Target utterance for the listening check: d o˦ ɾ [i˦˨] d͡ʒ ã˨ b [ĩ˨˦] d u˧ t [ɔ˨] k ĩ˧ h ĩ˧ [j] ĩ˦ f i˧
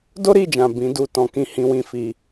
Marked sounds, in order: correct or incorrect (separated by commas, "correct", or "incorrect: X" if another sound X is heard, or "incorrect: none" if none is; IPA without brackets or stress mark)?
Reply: correct, correct, incorrect: ɔ̃˨, incorrect: w